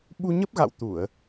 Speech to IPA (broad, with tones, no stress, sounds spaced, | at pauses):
ɓ u˧ ɲ ə˦˥ p̚ ɣ a̰˧˨ w t̪ u˧˩˨ ə̯